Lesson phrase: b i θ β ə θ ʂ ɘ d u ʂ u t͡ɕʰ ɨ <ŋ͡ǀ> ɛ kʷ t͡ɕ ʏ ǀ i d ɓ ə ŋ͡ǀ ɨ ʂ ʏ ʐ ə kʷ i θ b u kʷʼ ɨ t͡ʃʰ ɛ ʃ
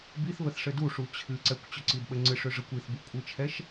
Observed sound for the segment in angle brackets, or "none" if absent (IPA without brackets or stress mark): ǀ